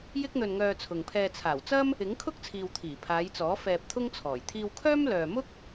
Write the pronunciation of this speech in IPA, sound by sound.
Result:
jɪ˥k̚n̪ɵ˧n ŋœː˧t͡sʰʊ˨ŋpʰɛː˧ t͡sʰaː˨˩wt͡sɐ˥m | ɪ˨˥ŋkʰʊ˥k̚t͡sʰiː˨w t̪ʰiː˨˩pʰaː˨˧jt͡sɔː˨˥ fɛː˧p̚t̪ʰʊ˥ŋt͡sʰɔː˨˩j t̪ʰiː˧wkʰœː˥mlœː˨ mʊ˥k̚

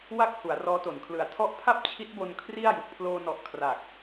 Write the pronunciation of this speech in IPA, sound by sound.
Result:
wa˥˩k̚ hu˩˦a̯rɔː˦˥to˩˦nkʰlɯ˨˩a̯ tʰɔ˦˥ʔpʰa˥˩p̚ t͡ɕʰi˦˥t̚bo˧n kʰri˥˩a̯ju˨˩k̚ pʰloː˧nɔ˨˩ʔ kʰra˨˩k̚

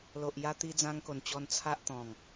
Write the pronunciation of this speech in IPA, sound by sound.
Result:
lo˨ʔ ja˧t̪i˧ d͡zã˧ŋko˨˩nt͡ɕɔ˧n t͡sʰa˦ʔ t̪ɔ̃˨˩ŋ

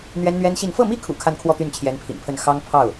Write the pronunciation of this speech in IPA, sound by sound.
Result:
n̪ɥɛ˥nn̪ɥɛ˥nɕi˥˧n fɤ˥˩mi˥kʰṵ˨˩ kʰa˥˧nkʰwɔ˥˧ t̪y˥˩nt͡ɕʰjɛ˧˥npʰḭ˨˩npʰə˥˩n xɑ˥ŋ pʰɑ˥˩ʊ̯

